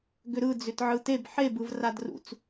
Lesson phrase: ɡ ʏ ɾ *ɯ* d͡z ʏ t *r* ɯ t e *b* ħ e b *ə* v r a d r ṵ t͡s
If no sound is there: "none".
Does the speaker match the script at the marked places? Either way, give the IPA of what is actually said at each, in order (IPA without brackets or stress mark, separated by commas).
ɯ, ʕ, b, ɯ